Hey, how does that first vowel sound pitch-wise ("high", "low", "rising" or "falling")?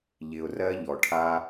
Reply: low